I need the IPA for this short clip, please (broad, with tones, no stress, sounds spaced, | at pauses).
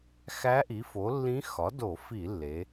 x æ˧˥ ʔ i˩˥ f o˩˥ lː ĩ˧˥ x ɒ˩˥ d o˧˩˧ f i˧˩˧ lː e˩˧